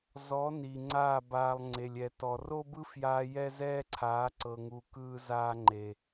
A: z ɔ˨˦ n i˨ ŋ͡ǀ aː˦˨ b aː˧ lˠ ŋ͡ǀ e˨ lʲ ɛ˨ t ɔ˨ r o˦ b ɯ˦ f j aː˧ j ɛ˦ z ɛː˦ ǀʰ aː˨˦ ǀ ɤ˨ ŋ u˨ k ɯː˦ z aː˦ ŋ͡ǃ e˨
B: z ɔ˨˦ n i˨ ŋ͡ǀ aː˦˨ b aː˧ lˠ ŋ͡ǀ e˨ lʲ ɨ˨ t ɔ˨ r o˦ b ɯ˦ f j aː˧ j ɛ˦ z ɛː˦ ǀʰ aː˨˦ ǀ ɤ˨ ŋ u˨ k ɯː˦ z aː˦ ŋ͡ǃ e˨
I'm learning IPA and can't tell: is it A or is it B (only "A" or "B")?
A